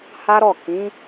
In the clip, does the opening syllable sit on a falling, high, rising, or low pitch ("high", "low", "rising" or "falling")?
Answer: high